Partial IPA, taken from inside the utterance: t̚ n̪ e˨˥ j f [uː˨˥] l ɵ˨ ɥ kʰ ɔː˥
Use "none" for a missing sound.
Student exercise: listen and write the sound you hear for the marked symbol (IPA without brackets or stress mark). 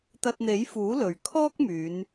uː˨˥